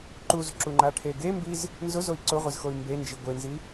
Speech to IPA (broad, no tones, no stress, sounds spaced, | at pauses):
ǃ u z ǁ u ŋ͡ǃ a ʈʰ e ɡ e m b i z | n z ʊ z o i̯ ǀ ʊ ʁʷ e z x o y̯ m b e n d͡ʒ i ɡʷ e n z i